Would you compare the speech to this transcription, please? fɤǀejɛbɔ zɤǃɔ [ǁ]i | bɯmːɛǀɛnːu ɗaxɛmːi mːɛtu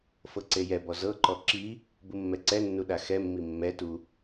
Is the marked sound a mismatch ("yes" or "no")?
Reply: no